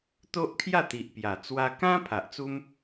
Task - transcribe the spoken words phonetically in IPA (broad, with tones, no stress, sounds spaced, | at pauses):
t̪ o˦ ʔ kʰ j a˥˧ t̪ i˨ ʔ p j a˨˩ t͡s w a˧ k ã˦ pʰ a˨ ʔ t͡s u˦ m